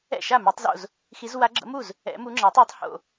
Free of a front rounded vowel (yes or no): no